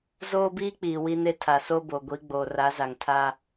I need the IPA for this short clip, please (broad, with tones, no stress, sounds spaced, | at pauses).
z oː˦ b iː˦ k͡p iː˨ w i˦ n e˦ tʰ a˨ s o˦ b o˨ ɡʷ i˨˦ ɡ͡b oː˨ r a˨˦ z a˨ ŋ tʰ a˦